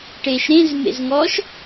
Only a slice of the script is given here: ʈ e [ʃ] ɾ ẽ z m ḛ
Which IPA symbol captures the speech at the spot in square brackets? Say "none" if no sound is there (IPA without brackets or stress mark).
ʃ